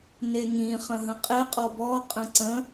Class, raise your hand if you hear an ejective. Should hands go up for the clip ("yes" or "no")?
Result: yes